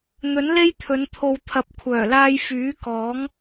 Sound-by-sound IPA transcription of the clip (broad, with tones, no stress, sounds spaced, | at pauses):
n̪ ɵ˨˥ n l e˥ j t̪ʰ ɵ˨˧ n t̪ʰ o˨ w t̪ʰ ɐ˨ p̚ kʷʰ œː˨˩ l aː˧ j f yː˨˥ k ɔː˨˥ ŋ